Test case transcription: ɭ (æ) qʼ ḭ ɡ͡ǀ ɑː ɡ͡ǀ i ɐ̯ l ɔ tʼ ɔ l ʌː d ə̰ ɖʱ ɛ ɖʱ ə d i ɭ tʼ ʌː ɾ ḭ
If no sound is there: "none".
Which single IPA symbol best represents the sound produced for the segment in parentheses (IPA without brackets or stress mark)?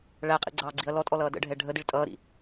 æ